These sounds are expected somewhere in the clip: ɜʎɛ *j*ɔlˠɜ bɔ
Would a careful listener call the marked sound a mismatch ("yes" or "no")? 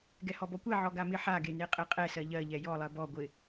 no